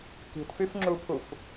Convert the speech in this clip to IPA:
ki̤tfyfŋ͡ǁupʰuf

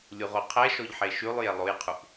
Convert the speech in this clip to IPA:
lʲuʁoqʰɛʃɔʎ ħeʃʉlˠje lˠojqʰuʔ

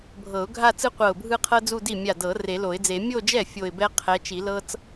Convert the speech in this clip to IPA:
bʱɤ˨˩˦ʊ̯ɡʱa˥˧ t͡sɯ˥qʷɤ˧˩ʊ̯bʱɯ˥˧qʰɤ˥ d͡zu˥˧di˥˩ mʲa˧˩dɤ˨˩˦ re˨˩˦lo˨˩˦ɪ̯d͡ze˨˩˦ mʲo˥˧d͡ʒɛ˥˩ fʲo˧˩ɪ̯bɛ˥ qʰɛ˨˦t͡ʃi˨˩˦lɤ˥t͡s

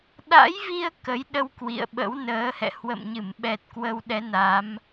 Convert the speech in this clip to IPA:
ɗa̰˧˥jvi˧ə̯ kə˨˦jɗə˧w kwḭ˧˨ə̯ɓə̰˧˥w nəː˨˦hɛ̰˧˨ hwə̰˧˨mɲɨ˧˩m ɓɛ˨˩t̚ kwə˧wɗɛ˨˦na˨˦m

